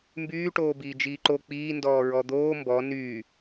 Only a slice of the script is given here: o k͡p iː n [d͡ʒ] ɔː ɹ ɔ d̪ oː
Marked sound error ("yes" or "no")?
yes